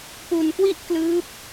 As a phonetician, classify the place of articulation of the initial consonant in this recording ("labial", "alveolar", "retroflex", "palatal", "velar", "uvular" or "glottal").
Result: labial